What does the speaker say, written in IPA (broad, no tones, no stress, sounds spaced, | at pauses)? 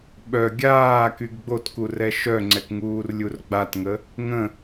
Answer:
ɓ œ ɡʲ aː k y ɡ ɡ͡b o t k u r ɛ ʃ œ ŋ͡ǀ ɛ k ŋ uː r lʲ u r ɡ͡b a t ŋ ə | ŋ ə̃